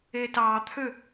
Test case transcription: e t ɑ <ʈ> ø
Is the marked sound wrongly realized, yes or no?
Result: yes